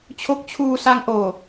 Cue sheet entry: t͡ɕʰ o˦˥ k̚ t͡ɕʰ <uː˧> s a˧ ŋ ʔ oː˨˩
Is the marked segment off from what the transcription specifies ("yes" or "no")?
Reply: no